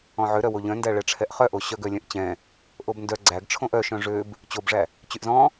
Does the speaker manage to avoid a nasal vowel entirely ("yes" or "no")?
no